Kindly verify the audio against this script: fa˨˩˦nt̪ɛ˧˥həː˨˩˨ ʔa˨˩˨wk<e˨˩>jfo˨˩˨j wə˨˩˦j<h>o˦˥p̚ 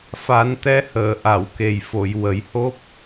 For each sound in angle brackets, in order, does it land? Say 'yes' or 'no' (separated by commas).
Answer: yes, yes